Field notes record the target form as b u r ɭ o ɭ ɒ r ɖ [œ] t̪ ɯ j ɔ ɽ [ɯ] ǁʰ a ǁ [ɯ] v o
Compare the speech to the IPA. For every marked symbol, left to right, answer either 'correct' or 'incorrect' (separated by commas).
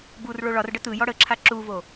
incorrect, incorrect, incorrect